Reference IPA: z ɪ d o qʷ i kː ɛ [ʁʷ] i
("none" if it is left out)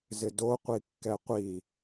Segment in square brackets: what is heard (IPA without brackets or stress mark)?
qʷ